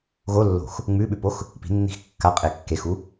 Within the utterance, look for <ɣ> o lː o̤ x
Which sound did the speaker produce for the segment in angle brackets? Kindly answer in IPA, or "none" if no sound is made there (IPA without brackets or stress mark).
ɣ